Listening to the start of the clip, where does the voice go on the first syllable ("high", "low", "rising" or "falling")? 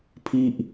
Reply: falling